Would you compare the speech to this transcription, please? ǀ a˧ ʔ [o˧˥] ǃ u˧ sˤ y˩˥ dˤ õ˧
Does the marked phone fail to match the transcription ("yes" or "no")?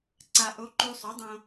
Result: no